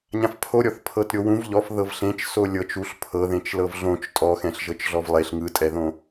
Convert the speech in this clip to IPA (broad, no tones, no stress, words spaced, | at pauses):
ɲãfpʰoɾʲɔθ pʰɤtɾʲowũv ʎɔf ðɤvɬẽt͡ʃ solʲɤt͡ʃ uɬ pʰɤðẽt͡ʃ lɤvɮõt͡ʃ tʼɔxɛ̃ɬʒɤt͡ʃɮɔv lˠeɬ ŋɯtʼɛðõ